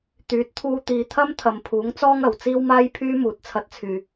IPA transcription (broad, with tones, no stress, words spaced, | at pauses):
t̪yː˨˥t̚t̪ʰuː˧t̪iː˨t̪ʰɐ˥m t̪ʰɐ˨mpʰuː˨˥ŋt͡sɔː˥ŋ ɐ˨˩wt͡siː˥wmaː˥jpʰyː˥ muː˨˥t̚t͡sʰɐ˧t̚t͡sʰyː˨